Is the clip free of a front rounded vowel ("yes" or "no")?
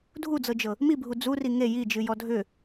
no